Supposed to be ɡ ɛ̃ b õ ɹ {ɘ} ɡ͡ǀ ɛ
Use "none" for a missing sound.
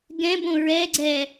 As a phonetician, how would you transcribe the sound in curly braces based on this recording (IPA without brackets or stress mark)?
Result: ɛ